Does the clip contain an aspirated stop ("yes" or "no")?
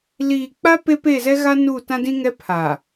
yes